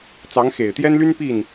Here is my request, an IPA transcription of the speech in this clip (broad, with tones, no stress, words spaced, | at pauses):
t͡sɑ˧˥ŋxe˨˩ɪ̯t̪jɛ˥nly˥n pi˥˩n